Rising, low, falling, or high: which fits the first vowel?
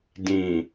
low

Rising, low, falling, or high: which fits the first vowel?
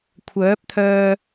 rising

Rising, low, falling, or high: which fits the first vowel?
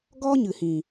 high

